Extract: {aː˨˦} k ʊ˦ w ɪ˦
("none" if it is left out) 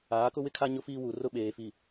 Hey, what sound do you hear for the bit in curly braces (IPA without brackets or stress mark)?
aː˨˦